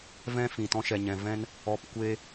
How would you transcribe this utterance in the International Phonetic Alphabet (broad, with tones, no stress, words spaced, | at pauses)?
vɛ̃˦fĩ˨ tɔ̃˧ʃɛ˨ɲɛ̃˨vɛ̃˦n | ɔ˨p kʷe˦